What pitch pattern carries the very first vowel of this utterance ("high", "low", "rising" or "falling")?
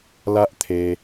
high